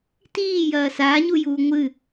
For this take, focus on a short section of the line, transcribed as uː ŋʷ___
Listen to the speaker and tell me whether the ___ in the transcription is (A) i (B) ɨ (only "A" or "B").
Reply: B